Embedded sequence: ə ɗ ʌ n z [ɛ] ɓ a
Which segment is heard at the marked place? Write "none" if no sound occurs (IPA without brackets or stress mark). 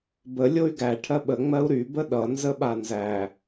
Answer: ə